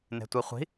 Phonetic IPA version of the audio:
n e̤ tʷ i χʷ i̤

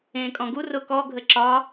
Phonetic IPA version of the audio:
ẽː kʼ ɔ̃ ɡ u r ʊ k ɔ ɡʱ ə ǁ ɒ

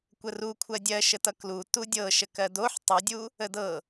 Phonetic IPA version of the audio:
kʷ ə r u kʷʰ ɜ dʲ ɜ ʃ ə t ʌ k l u t u dʲ ɤ ʃ ə k ɜ d o ħ tˤ ʌ dʲ u | ə d ɤ

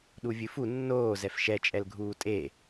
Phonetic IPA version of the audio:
ɗ u vʲ ɨ f u nː oː z ɛ f ʃ ɛ t͡ʃʼ ɛ l ɡʱ uː tʼ e

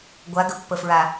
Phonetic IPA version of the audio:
ɡʷ a ɡ ə pː ə f ɹ a

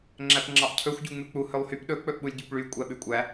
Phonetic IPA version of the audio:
ŋ͡ǁ æ p ŋ͡ǁ ɑ ʔ cʰ ɵ xʷ ɟ u ŋ͡m ʉ k͡p u h ɵ lˠ h y p ɗ ɵ k͡p ɵ ʔ ɓ u lʲ ɟ ʉ p ɭ y kʷʼ æ ɓ ʉ kʷʼ æ

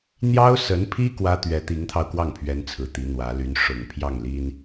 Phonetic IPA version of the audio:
n̪ j ɑ˥ ʊ̯ s ə˧˥ n pʰ i˥ k w ä˥ t̪ ɥ ɛ˧˥ t̪ i˧˥ ŋ t̪ʰ ɑ˧ ʊ̯ k w ɑ˥˩ ŋ pʰ ɥ ɛ˧˥ n t͡sʰ ɹ̩˨˩ t̪ i˧˥ n̪ w ä˧˥ l y˧˥ n ʂ ʊ˨˩ ŋ pʰ j ɑ˥˩ ŋ l i˥ n

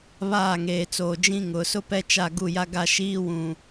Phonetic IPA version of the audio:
β aː˦˨ ŋ eː˨ t͡s oː˨ d͡ʒ ĩ˦ ŋ ʊ˨˦ s ʊ˦ p ɛ˦ t͡ʃ a˦˨ ɡ u˦˨ j a˦ ɡ a˦ ʃ iː˦ w ũ˨

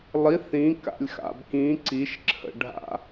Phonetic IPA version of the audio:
lˠ i θ ĩ k a̰ lʲ x a̰ b k ĩ ǀ i ʃ ǁʰ ə̰ ɖʱ a̰

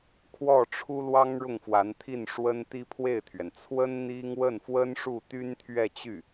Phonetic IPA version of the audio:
kʰ w ɔ˥˩ ʈ͡ʂʰ u˥ l w ɑ˥ ŋ ɻ ʊ˥˩ ŋ f w a˧˥ n t̪ʰ i˥˩ n ʂ w ə˥ n t̪ i˥ pʰ w e˥˩ ɪ̯ t̪ʰ ɥ ɛ˩ n t͡sʰ w ə˥ n n̪ i˥ ŋ w ə˥˩ n f w ə˥ n ʂ u˥˩ t̪ y˥ n t̪ʰ ɥ ɛ˥˧ t͡ɕ y˥˩

